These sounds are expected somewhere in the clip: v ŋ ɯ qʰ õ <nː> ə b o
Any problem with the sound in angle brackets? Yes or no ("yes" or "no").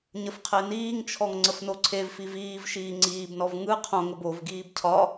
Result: yes